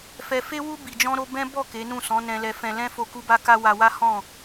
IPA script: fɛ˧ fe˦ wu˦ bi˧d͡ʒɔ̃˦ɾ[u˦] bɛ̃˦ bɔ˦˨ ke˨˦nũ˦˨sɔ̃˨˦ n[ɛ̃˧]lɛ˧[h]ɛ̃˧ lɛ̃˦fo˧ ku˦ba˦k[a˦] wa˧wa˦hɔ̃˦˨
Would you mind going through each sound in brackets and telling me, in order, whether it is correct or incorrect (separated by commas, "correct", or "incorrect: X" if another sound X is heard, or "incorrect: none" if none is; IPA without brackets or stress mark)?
incorrect: o˦, correct, incorrect: f, correct